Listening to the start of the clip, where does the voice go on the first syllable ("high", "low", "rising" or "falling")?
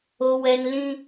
high